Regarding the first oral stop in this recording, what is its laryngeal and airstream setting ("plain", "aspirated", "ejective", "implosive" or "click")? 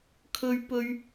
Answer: aspirated